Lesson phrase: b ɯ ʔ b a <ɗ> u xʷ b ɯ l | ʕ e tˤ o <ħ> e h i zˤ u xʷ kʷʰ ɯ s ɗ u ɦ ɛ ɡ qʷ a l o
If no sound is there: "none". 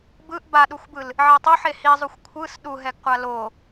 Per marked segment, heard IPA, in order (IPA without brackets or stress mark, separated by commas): ɗ, ħ